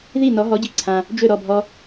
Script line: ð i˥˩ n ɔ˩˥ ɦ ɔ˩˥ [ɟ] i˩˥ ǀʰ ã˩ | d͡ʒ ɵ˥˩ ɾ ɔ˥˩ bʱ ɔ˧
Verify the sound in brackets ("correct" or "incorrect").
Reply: correct